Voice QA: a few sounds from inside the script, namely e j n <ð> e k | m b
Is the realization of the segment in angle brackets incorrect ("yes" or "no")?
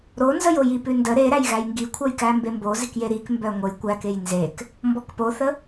yes